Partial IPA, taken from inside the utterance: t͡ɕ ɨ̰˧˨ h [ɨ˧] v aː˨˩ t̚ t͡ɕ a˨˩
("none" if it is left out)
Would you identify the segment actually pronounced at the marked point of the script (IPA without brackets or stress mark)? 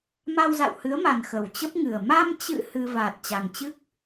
ɨ˧